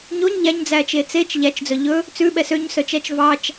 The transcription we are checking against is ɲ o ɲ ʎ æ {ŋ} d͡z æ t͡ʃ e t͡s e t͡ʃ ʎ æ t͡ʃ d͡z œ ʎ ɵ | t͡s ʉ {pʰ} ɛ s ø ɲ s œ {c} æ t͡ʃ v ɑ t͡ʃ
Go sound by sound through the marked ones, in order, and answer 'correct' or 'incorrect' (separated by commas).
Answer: incorrect, incorrect, incorrect